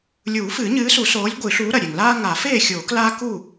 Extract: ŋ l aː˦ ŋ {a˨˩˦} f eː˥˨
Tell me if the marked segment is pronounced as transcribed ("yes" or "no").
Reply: yes